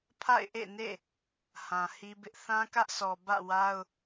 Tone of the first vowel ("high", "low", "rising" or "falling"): falling